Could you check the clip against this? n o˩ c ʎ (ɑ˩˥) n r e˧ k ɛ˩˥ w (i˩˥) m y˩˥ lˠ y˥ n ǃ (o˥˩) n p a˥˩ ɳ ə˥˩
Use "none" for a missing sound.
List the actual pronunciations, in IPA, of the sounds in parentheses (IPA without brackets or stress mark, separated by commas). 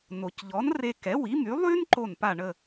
ɔ˩˥, i˩˥, o˥˩